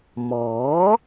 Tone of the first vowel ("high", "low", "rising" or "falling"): rising